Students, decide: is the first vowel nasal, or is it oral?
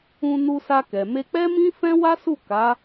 nasal